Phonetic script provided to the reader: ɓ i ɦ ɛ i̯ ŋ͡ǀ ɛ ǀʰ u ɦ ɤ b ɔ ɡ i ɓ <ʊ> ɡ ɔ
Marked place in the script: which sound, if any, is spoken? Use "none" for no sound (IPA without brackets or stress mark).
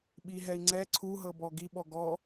ɔ